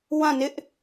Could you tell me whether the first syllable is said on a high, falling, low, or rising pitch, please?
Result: falling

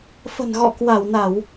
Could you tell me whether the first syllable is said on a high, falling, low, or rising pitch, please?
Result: low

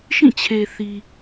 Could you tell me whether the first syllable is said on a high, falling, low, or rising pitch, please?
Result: falling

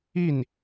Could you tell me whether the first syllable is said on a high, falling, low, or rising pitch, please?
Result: falling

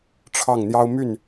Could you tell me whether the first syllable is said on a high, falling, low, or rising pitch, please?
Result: falling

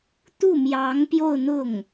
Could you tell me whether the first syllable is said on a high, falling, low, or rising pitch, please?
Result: falling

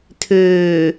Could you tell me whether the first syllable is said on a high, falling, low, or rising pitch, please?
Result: low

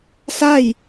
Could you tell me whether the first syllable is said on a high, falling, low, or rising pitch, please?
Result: falling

